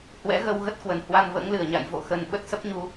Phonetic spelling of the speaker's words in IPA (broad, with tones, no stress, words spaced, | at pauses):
hwɛ̰˧˥ɣə˧w ɣə˦˥t̚kwə˨˩n hwa˧nvə̰ː˧˥ŋlɨ˧˩ə̯ɲa̰˧˨j vo̰˧˨xə˨˩n ɓə˦˥t̚sə˦˥p̚ɲu˧